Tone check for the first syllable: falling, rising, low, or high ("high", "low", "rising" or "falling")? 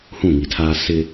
falling